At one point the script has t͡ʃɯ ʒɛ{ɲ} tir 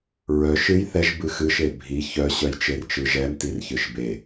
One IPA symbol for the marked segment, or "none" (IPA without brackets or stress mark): m